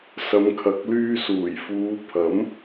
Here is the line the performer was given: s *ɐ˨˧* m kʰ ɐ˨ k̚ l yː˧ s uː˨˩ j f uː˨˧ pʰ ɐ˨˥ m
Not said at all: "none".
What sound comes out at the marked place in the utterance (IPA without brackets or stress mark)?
ɐ˨˧